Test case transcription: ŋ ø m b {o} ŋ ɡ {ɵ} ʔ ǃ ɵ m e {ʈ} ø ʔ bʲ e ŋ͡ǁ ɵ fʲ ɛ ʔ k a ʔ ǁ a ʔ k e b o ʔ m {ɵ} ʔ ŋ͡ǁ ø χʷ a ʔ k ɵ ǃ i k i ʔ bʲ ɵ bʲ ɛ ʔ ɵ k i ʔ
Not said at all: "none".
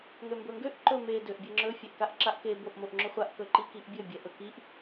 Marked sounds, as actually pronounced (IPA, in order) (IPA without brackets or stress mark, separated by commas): ɵ, ø, d, o